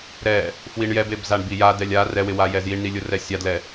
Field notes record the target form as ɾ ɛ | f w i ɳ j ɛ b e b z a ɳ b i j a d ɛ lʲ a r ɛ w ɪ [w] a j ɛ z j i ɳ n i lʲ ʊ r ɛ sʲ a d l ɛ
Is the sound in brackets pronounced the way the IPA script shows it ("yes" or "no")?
yes